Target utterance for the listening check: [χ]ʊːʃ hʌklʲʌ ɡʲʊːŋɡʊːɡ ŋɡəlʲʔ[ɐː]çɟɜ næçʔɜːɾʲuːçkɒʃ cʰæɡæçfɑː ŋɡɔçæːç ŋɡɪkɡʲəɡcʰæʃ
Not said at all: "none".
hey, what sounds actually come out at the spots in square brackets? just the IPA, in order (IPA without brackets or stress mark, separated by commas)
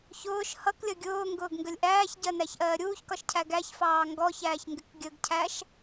ç, æː